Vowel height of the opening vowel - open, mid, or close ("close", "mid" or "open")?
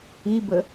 close